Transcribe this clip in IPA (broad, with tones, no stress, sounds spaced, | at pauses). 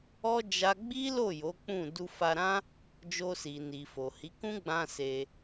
ɔ˦ d͡ʒ a˦ ɡ͡b i˦ l o˦˨ j o˨˦ k͡p ũ˦˨ d u˧ f a˧ ɾ ã˦ | d͡ʒ o˧ s i˨ n i˨ f o˨ h i˨˦ k ũ˦ ɡ͡b ã˧ s e˧